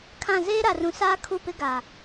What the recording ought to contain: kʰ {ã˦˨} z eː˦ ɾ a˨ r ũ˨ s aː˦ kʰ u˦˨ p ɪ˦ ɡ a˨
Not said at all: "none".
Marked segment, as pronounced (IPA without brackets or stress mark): ã˦˨